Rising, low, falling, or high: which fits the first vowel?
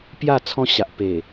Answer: falling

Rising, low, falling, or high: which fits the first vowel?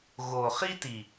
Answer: low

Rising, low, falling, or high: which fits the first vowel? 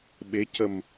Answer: rising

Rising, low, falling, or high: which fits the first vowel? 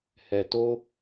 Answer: low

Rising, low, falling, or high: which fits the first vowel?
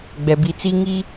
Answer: low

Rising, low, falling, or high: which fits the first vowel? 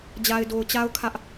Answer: low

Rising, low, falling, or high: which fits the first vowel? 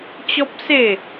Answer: high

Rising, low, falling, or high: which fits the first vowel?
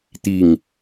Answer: falling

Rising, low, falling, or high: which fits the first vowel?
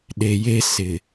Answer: low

